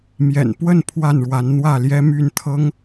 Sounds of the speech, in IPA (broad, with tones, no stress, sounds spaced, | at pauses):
m j ɛ̰˨˩ n p w ə˥˨ n pʰ w a˥˨ n ɻ w a˨˦ n n̪ w ä˥˨ l j ɛ˦ m y˥˨ n t̪ʰ ɤ˦ ŋ